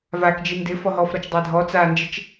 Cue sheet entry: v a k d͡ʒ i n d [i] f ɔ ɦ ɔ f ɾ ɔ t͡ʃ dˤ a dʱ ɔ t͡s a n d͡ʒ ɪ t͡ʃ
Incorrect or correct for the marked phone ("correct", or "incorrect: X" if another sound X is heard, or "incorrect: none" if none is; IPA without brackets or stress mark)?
incorrect: ɪ